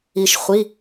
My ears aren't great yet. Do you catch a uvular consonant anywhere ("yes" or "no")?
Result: yes